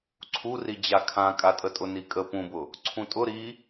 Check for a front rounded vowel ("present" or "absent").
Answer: absent